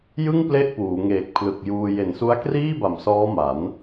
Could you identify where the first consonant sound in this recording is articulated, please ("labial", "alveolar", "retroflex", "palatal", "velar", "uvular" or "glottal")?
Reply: palatal